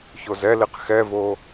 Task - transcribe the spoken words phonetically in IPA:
ç o z ɛ l i q x ɛ v o

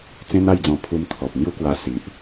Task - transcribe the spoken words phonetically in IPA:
t͡s ẽ˦ n a˥˧ j d͡z ɔ̃˧ pʰ u˧ m t̪ʰ ɔ˨ p̚ n̪ j u˦ k w a˧ s i˨ ʔ

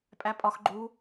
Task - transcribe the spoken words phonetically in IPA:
pʼ æ pʼ ɒ x ɡ͡ǃ u

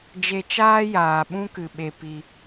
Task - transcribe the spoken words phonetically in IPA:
d͡ʒ e˧ t͡ʃ aː˦ j aː˨ ɓ ũ˦ k ɨ˨ ɓ e˧ p i˧

